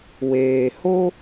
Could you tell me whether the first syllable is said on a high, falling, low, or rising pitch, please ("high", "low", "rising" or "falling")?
low